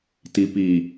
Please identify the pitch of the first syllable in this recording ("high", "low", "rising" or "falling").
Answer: low